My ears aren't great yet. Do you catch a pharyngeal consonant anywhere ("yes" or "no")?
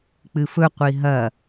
no